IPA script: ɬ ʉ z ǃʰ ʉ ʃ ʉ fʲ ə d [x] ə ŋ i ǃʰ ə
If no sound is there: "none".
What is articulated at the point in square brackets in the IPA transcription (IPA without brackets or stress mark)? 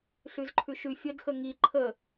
x